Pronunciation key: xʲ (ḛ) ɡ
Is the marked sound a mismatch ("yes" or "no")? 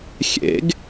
no